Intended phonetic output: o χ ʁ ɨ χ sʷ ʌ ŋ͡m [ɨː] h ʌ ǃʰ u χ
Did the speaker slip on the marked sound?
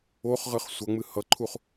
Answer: yes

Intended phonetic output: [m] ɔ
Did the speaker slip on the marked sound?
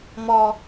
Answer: no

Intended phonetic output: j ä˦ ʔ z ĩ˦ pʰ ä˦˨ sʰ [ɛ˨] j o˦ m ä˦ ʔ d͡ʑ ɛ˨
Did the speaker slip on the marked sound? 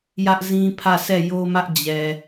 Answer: yes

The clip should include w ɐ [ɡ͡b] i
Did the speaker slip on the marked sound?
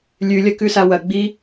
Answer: no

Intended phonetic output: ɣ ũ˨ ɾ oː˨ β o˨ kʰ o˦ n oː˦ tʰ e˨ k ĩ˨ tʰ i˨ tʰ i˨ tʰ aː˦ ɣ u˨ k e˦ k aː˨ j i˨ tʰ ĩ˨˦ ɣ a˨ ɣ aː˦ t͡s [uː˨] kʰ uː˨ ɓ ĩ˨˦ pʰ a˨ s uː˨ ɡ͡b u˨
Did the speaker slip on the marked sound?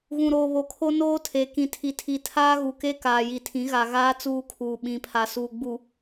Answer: yes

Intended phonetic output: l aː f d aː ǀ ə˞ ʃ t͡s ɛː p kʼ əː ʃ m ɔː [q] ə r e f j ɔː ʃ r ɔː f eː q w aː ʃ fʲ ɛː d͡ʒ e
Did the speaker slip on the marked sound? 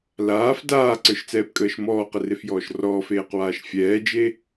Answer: no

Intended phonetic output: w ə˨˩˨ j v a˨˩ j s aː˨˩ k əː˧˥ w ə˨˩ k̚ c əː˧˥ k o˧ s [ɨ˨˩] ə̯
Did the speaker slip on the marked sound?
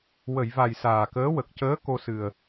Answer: no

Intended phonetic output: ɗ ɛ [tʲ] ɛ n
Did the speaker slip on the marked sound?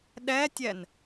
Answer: no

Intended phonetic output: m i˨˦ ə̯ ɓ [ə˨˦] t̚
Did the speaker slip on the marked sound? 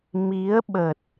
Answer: yes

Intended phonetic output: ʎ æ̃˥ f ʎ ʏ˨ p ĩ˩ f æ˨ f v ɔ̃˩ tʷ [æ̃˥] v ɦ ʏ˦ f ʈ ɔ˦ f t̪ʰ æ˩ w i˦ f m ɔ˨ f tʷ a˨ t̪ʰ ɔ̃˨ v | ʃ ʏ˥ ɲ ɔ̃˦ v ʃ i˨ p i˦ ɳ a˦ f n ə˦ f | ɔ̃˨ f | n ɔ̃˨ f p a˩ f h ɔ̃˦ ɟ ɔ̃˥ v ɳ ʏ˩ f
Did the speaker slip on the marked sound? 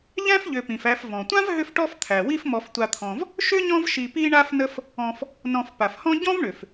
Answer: yes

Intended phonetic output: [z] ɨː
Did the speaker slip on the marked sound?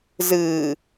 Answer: no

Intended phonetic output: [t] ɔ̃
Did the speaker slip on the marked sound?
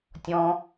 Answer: yes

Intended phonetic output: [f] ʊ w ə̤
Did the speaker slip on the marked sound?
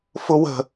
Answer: no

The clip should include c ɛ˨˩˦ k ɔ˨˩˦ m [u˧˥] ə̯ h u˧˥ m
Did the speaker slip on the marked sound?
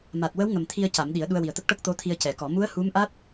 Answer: no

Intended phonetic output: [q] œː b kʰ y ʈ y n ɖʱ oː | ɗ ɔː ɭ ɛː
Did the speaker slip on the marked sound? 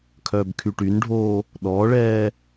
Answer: yes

